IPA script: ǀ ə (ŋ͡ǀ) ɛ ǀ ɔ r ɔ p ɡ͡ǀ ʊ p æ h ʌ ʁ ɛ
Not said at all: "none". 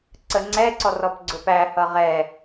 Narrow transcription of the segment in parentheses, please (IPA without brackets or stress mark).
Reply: ŋ͡ǀ